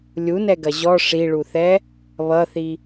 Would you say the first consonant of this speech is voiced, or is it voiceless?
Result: voiced